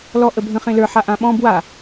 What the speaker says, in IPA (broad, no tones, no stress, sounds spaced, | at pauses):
l ɔ ʔ ə bʱ ə̃ χ ẽ l ə˞ ħ a ʔ ã ɓ ɔ̃ b w a